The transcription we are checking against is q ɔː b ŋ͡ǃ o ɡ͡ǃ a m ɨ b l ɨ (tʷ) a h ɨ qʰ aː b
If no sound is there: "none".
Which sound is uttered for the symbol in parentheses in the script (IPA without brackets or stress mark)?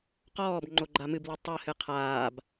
tˤ